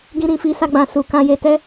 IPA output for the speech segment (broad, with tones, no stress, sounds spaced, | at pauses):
ɡ ĩ˧ ɾ ĩ˨ f i˧ s a˧ ɡ͡b ã˨ s u˨ k ã˧ j e˧ t ɛ˦